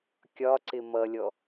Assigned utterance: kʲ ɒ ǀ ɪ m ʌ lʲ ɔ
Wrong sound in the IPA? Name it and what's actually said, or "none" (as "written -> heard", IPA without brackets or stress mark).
none